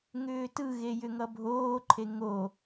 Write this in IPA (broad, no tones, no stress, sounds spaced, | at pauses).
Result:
ŋ ʏː t ɯ ɣ e j ʏ ŋ ʌ bʱ oː ǃʰ e ŋ o